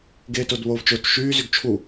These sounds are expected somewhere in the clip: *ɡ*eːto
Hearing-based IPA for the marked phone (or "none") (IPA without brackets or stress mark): ɡ